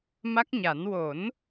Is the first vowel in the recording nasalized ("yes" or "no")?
no